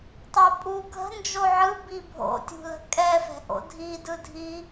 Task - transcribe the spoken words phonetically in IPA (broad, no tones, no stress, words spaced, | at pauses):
tˤopʼu ɡʱə̤ nd͡ʒoʕɯ bibʱo̰ tʲṳlə̤kʼɛ fɛ̤ʔo̰dʱi dɯdʱi